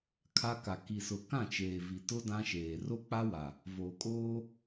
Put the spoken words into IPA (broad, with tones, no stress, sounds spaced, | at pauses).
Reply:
kʰ a˦ k a˨ k i˨ s ʊ˨ k ã˦˨ t͡ʃ eː˨ v i˨ t ʊ˦ d ã˦ ʃ eː˨ r o˦ k͡p a˦ w a˨ | v oː˨ kʼ oː˦